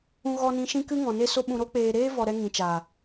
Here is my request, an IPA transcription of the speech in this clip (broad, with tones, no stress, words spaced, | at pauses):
ũ˧ɣɔ˧nĩ˧ ʃĩ˧ kɨ˦ŋɔ̃˨ne˦so˦ ɓũ˧ɾo˦k͡peː˧ ɾeː˦vɔ˨ɾɛ˧ ŋĩ˨t͡ʃaː˨